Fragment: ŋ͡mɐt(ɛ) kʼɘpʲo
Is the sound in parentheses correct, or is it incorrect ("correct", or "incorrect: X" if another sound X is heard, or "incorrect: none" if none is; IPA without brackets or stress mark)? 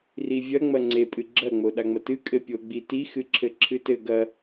incorrect: ɨ